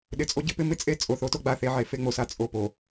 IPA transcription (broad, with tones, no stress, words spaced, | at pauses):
ɗɪ˨t͡sʼo˦ɟɪ˦pɪ˦ mɪ˦t͡sʼe˦ t͡sʼo˨θo˦to˦ ɡ͡ba˨θe˦ʕe˨ fe˦ŋ͡mo˨sa˦ t͡sʼo˨po˨